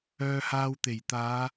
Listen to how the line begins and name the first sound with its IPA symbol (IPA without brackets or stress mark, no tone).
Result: œː